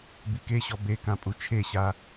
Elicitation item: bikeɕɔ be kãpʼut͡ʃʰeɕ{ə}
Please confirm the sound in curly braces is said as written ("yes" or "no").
no